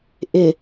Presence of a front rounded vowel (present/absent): absent